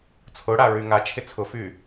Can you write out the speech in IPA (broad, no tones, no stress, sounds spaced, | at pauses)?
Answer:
t͡sʰ ʊ ɽ a ɹ y ŋ a t͡ʃʰ ɪ t͡sʰ ʊ f y